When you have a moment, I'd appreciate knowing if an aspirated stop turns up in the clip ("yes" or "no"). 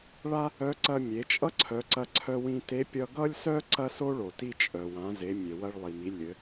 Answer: yes